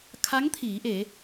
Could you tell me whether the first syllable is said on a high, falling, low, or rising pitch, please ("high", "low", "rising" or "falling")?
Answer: rising